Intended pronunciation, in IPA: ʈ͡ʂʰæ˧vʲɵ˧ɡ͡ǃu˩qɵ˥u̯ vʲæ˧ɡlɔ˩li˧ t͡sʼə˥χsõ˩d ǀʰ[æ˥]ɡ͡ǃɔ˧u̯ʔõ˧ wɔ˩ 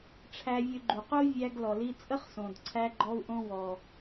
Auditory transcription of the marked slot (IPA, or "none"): æ˧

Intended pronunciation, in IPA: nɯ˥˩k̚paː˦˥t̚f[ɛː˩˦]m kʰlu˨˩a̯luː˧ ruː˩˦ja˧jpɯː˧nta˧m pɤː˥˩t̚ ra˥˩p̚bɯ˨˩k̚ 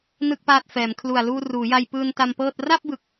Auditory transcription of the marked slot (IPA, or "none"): ɛː˩˦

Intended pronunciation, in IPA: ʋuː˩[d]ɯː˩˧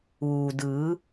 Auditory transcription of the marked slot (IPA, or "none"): d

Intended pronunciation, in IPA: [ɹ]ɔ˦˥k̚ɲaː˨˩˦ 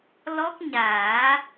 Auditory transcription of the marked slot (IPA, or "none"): l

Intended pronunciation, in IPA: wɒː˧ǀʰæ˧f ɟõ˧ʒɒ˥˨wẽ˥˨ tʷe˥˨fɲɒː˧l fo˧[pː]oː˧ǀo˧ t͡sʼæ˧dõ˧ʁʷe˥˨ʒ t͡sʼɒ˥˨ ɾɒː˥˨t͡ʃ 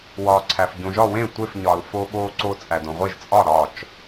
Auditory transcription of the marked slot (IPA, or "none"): ɓ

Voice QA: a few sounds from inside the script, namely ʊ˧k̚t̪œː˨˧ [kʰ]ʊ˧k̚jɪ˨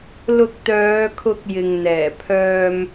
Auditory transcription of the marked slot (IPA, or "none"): kʰ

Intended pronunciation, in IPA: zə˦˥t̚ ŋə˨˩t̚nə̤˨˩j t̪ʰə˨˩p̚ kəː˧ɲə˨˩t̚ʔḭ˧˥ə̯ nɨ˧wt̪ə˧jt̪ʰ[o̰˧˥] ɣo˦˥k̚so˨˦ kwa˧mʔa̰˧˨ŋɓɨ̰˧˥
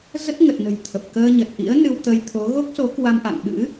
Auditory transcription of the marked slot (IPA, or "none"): o˨˦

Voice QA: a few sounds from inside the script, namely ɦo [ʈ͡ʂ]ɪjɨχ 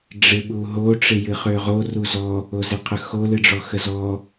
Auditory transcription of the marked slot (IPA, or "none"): ʈ͡ʂ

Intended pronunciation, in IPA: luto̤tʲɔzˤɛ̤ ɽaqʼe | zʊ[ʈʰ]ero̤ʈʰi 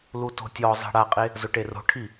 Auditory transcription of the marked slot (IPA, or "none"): ʈ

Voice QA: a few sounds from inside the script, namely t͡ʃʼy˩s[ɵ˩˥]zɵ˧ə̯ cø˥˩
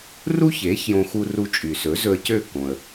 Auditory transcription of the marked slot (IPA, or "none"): ɵ˩˥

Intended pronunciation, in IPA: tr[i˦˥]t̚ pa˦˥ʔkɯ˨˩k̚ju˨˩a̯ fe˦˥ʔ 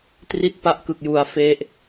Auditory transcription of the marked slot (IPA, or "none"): i˦˥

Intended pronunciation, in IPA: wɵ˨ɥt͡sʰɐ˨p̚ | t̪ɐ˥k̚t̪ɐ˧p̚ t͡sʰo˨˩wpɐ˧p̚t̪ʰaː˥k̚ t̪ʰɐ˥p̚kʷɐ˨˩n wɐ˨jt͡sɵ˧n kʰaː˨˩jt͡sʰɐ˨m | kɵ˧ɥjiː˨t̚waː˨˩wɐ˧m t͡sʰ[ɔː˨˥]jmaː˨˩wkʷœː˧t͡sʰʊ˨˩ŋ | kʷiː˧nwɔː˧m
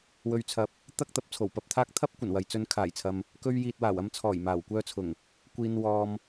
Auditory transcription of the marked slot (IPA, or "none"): ɔː˨˩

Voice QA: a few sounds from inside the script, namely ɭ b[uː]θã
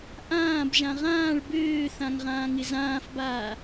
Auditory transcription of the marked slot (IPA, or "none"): øː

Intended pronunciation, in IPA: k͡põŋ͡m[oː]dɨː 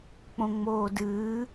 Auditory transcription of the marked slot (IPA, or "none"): oː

